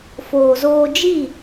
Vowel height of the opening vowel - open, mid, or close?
mid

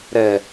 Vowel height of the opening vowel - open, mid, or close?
mid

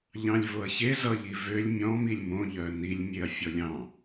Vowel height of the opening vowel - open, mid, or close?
open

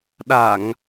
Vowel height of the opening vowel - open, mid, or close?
open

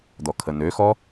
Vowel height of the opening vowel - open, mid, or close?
mid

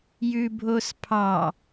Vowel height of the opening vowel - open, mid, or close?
close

